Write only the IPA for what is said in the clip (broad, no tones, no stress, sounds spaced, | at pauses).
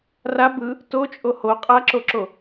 r a b ɯ | t o t͡ʃʼ o h o qʼ a ǁ o ǁ o